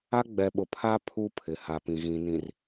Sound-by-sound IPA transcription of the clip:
a˦ ɡ͡b ɛ˨ ɓ ʊ˨ pʰ a˦ pʰ u˦ pʰ ɪ˨ h a˨ p ĩ˨ ɣ ĩ˨ n ĩ˨ r

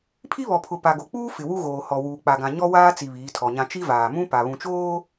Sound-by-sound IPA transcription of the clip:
pʰ i˦ β ɔ˨ pʰ ʊ˨ p a˨ ɡ o˨ k͡p uː˦ f ɪ˨ w u˦ ɣ oː˨ h ɔ˨ w uː˨ k͡p a˨ ɡ ã˨ ɲ ɔ˦ w aː˦ t͡s i˨ β iː˨˦ tʰ ɔ˨ ɲ ã˦ t͡ʃ i˦ v aː˨ m ũ˦ p a˨ β ũ˨ t͡ʃ oː˦

